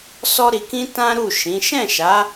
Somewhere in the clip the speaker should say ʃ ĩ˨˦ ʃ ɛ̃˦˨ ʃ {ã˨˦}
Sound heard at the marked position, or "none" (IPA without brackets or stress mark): a˨˦